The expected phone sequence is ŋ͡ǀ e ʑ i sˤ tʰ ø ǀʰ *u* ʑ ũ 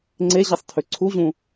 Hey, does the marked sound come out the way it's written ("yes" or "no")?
yes